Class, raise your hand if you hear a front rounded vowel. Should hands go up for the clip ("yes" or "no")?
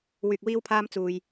yes